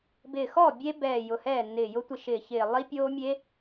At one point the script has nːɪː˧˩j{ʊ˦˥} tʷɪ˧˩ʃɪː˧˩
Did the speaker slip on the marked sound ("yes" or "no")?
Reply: no